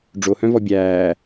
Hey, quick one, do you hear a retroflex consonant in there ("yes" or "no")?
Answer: yes